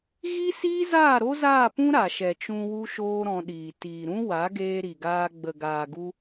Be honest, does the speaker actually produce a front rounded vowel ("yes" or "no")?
no